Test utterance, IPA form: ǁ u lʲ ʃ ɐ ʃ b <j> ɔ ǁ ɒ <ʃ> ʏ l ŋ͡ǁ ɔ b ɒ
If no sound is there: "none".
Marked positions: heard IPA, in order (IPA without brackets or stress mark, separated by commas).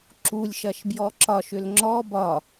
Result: j, ʃ